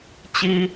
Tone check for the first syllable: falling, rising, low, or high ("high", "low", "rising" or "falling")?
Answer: low